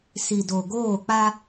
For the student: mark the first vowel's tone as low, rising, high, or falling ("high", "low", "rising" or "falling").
low